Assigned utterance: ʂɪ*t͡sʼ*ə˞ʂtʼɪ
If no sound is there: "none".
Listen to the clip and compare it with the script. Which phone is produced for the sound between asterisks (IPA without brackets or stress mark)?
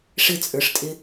t͡sʼ